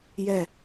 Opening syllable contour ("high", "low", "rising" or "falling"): falling